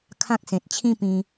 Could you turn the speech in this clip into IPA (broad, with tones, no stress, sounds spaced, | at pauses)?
kʰ ã˦ k̚ s ẽ˨ t̚ t͡ɕʰ ĩ˥˧ p ĩ˧